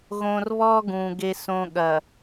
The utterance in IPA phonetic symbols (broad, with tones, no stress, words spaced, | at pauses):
ɣõ˨rβɔ˦ ɡũ˨ɡe˦sõ˦ ɠɐ˨